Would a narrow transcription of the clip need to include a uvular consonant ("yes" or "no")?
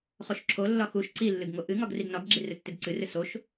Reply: yes